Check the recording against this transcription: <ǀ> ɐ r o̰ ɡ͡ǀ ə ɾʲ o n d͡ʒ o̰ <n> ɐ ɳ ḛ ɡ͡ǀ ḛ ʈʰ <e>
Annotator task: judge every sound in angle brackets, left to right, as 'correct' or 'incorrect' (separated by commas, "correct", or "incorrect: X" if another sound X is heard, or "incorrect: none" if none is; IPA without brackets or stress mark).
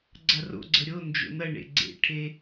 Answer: incorrect: ɡ͡ǀ, correct, correct